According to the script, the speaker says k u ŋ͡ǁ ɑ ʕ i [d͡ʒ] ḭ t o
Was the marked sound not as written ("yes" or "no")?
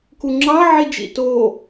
no